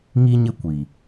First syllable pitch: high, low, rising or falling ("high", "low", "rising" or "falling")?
high